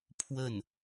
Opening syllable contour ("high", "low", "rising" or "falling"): falling